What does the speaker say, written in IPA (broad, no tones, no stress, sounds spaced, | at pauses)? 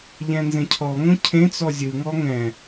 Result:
ʎ ɛ̃ n z ẽ cʰ ɔ ŋ õ cʰ ẽ t͡s ɔ zʲ ɯ ŋ ɔ ŋ ɛ̃